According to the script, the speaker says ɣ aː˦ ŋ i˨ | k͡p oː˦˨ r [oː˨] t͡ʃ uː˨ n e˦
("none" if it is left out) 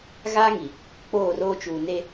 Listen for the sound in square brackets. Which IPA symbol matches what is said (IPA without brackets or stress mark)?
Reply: oː˦